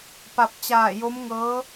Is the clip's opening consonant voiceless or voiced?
voiceless